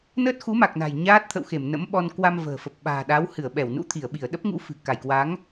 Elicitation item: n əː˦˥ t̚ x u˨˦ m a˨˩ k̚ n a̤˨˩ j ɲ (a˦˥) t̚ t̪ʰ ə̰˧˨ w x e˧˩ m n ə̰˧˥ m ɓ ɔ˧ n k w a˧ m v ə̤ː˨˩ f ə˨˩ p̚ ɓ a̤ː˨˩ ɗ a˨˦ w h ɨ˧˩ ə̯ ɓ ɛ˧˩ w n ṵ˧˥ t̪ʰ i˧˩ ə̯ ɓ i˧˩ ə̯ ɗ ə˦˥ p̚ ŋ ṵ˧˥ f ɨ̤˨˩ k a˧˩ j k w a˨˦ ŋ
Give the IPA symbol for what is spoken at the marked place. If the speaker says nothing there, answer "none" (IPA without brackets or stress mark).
aː˦˥